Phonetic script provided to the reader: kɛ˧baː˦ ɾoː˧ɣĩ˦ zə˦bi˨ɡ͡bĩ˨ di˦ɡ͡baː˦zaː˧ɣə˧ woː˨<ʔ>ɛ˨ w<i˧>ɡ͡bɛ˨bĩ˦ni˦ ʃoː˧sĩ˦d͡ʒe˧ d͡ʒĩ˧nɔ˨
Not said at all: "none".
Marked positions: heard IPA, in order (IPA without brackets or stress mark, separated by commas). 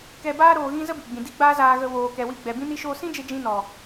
k, i˧